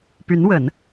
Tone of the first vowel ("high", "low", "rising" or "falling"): rising